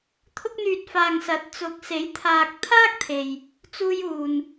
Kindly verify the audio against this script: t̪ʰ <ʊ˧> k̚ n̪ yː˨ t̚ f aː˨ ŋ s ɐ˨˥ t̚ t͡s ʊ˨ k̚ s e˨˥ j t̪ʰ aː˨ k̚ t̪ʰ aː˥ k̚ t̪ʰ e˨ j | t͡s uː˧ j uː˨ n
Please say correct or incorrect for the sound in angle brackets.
correct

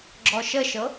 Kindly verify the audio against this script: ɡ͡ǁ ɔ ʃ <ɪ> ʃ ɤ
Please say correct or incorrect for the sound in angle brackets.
incorrect: ə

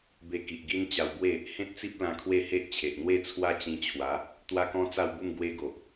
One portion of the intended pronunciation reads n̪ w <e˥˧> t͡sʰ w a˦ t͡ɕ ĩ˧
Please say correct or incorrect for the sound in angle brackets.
correct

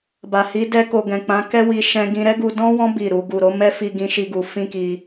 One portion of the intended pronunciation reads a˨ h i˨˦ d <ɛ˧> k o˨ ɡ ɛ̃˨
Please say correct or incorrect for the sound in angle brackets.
correct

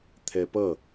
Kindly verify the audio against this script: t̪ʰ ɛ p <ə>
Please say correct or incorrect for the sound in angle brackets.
incorrect: ʌ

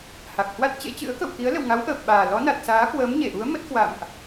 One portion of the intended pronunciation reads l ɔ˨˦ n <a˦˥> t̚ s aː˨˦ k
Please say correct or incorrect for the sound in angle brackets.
incorrect: a˨˩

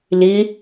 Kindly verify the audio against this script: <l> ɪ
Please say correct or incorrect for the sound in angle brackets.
correct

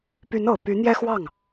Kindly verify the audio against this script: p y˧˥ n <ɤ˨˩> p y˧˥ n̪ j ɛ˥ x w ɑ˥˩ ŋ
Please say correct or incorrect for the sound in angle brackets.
correct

